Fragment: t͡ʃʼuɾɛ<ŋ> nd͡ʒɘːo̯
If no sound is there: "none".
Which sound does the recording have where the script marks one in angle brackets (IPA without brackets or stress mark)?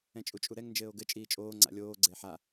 ŋ